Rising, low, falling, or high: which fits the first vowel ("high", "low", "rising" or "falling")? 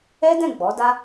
high